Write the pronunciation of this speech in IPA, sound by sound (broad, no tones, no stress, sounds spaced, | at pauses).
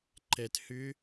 ǃ ɛ t h ʏ